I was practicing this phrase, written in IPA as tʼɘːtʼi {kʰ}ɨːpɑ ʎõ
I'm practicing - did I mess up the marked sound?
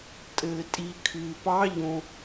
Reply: no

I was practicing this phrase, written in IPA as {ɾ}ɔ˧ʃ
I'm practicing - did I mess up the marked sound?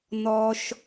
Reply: yes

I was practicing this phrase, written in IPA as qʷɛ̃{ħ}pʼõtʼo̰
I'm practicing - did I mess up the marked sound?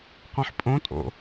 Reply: no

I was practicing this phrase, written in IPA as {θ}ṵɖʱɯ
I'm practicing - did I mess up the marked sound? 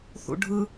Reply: no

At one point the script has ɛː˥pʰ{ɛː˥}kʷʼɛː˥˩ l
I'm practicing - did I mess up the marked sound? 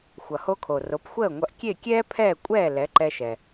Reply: yes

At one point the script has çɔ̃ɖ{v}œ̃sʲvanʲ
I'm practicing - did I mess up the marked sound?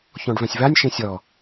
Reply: no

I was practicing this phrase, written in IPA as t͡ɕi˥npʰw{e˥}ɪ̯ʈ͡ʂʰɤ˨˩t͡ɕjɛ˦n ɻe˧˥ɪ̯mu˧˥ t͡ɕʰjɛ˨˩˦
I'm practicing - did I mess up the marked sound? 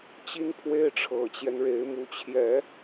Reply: no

